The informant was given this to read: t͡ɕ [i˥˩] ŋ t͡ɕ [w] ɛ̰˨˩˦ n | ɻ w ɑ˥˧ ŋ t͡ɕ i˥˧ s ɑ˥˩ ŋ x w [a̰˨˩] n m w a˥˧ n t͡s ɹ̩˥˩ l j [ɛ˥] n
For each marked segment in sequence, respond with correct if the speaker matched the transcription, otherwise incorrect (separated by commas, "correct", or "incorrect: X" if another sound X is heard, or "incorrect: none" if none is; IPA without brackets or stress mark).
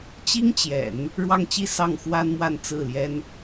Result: incorrect: i˥, incorrect: j, incorrect: a˥, correct